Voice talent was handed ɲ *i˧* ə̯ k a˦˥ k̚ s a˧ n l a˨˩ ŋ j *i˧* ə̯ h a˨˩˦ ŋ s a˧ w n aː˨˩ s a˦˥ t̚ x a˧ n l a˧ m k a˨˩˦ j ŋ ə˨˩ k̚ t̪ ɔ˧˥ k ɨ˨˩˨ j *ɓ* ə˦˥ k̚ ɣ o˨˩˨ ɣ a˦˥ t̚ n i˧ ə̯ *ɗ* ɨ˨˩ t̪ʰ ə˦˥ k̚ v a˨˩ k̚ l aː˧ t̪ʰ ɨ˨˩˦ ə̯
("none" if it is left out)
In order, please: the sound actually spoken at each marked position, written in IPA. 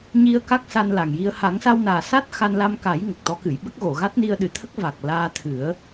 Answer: i˧, i˧, ɓ, ɗ

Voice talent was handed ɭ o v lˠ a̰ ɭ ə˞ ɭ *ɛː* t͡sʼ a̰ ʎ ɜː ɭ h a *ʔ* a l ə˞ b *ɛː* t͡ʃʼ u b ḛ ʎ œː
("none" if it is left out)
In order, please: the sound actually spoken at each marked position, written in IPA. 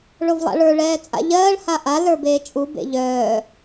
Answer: ɛː, ʔ, eː

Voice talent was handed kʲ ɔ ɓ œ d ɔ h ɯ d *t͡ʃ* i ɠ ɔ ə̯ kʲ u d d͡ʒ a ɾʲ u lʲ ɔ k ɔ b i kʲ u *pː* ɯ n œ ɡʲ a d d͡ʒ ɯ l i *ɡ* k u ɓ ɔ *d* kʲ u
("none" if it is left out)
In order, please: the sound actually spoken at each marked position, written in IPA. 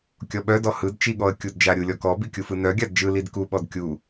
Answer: t͡ʃ, f, d, d

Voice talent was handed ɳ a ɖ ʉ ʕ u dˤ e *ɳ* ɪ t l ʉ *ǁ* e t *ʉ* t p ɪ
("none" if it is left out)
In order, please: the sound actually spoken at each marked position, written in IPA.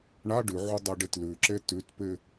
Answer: ɖ, ǁ, ʉ

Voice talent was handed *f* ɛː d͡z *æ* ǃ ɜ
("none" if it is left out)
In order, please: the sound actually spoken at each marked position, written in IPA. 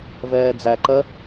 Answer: v, æ

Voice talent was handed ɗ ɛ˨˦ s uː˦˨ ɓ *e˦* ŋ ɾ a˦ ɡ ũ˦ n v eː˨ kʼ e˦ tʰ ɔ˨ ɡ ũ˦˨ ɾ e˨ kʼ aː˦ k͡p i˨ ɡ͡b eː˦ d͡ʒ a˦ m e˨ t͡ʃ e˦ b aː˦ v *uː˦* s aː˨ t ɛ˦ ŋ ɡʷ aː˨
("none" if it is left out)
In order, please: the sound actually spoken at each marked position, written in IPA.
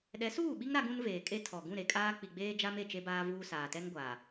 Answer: i˦, uː˦

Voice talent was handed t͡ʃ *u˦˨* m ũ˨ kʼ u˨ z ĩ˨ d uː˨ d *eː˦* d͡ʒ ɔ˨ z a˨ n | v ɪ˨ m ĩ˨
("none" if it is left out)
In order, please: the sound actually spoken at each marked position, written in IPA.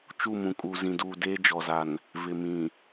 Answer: u˦˨, eː˦

